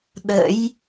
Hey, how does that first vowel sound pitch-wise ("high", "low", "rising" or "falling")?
rising